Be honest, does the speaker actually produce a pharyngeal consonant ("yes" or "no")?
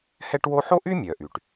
yes